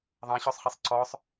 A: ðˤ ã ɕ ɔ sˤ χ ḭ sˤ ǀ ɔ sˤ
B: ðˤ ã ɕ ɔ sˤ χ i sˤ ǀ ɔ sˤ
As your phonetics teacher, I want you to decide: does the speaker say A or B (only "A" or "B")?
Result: B